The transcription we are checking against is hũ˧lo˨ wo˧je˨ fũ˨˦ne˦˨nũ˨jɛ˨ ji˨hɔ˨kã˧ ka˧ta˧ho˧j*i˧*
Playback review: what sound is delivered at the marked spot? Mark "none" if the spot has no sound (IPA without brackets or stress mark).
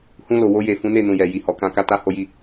i˧